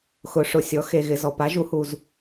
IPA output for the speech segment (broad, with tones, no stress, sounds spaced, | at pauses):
x ʊ˩˥ ʂ ʊ˩ sʲ ɔ˩˥ x e˩ ɣ ɪ˩ z ɔ˩ p a˩˥ ʒ u˩˥ h u˩ z